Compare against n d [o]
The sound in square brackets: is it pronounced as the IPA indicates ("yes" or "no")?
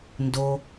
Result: yes